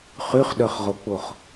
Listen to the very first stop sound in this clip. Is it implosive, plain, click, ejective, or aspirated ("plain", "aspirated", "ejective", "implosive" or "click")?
implosive